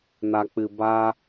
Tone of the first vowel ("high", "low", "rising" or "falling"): low